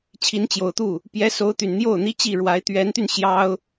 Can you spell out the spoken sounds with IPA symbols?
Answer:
t͡ɕʰ i˧˥ n t͡ɕ j o˨˩ ʊ̯ t̪ u˥˩ | p j ɛ˧˥ s o˧˥ ʊ̯ t̪ y˨˩ n n̪ j o˥˩ ʊ̯ n̪ i˥ t͡ɕ i˥˩ ɻ w a˧˥ ɪ̯ t̪ ɥ ɛ˧˥ n t̪ y˧ n ɕ j ɑ˥ ʊ̯

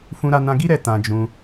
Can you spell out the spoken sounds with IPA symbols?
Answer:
f ũ˧ ɾ a˧ n ã˧ ɡ i˦ ɾ ɛ˦˨ t ã˧ d͡ʒ ũ˧

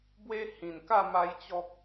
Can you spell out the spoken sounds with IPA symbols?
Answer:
b w e˦ h ĩ˨˩ n k a˥˧ m a˧ j t͡ɕ ɔ˦ k̚

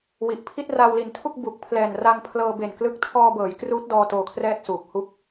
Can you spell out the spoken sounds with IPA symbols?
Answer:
w i˨˩ ʔ pʰ i˥˩ t̚ r a˧ w l i˨˩ n tʰ u˥˩ k̚ b u˨˩ k̚ pʰ l ɛː˨˩ n r a˧ ŋ pʰ l ɤː˧ b e˨˩ n k l ɯ˦˥ k̚ tʰ ɔː˧ b ɤː˩˦ j k r uː˦˥ t̚ d ɔː˧ t oː˧ kʰ r ɛː˥˩ t̚ s uː˨˩ k̚ h u˦˥ k̚

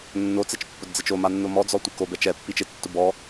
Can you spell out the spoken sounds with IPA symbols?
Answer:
nː o t͡s ɛ t͡ʃ pː ʊ d d͡z ɪ t͡ʃ o m a nː o m ɔ d͡z ɔ tʷ e k o b ɛ t͡ʃ ɛ pː i t͡ʃ ɪ tː ʊ b ɔ

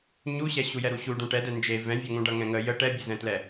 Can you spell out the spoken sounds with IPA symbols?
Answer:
ɲ u ɕ ɛ ɕ u j ɛ ɾ u ɕ u ɖ ũ ʈ ɛ d ɛ n d͡ʒ e v ɛ̃ vʲ ʌ ŋ ũ ɖ ʌ ŋ ɛ̃ ŋ ə j ə ʈ ɛ bʲ ə z ɛ̃ t l ɛ

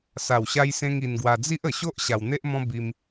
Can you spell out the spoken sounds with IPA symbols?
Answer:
s a˨˩ w ɕ a˧ j s ẽ˧ ŋ i˧ n ɡ w a˧ d͡z i˦ ʔ ə˨˩ ɕ o˦ ʔ ɕ a˧ w n̪ e˦ ʔ m ɔ̃˦ b i˧ m

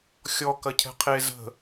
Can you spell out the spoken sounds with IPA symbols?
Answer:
xʲ ɔ k ɐ cʰ ɛ̤ qʰ e z ə̤

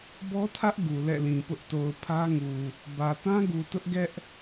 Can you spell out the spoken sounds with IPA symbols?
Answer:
b ɔ˦ tʰ ä˦ ʔ ɡ u˨ l ɛ̰˦˨ l ĩ˨ p ʊ˦ ʔ t o˨ ʊ̯ pʰ ä˦ ŋ u˨ | b ä˨ t ã˦ ɡ u˨ t ʊ˦ ʔ ɡ ɛ˦ ʔ

